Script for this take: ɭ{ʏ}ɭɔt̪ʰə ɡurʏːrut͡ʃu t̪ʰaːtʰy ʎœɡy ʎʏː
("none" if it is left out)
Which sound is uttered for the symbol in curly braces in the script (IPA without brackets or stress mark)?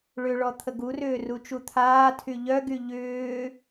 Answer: ʏ